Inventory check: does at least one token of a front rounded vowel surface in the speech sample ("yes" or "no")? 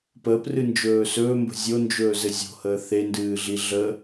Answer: no